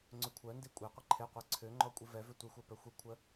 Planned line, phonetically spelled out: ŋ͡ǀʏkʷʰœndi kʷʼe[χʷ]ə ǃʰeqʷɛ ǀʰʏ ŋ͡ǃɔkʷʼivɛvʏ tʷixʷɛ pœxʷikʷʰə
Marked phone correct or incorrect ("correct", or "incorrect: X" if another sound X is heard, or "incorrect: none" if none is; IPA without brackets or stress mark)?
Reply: incorrect: qʷ